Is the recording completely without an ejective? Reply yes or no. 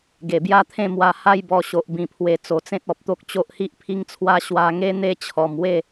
yes